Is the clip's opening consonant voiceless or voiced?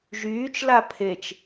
voiced